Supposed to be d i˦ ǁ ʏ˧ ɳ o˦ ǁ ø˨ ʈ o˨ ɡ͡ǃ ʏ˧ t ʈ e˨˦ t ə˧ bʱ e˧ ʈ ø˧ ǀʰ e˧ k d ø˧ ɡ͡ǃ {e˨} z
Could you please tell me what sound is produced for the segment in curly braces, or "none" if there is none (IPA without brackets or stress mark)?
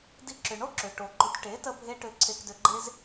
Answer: e˦